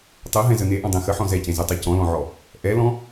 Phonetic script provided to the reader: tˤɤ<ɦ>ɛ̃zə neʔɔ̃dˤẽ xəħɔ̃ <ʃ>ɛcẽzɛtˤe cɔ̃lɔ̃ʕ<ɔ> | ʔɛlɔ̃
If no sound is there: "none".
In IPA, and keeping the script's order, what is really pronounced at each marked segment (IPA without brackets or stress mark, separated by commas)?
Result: ɦ, z, ɔ